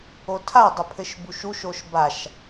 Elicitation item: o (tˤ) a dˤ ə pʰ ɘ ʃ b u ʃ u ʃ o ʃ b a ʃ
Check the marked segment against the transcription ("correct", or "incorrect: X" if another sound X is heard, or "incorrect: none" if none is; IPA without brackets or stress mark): incorrect: tʰ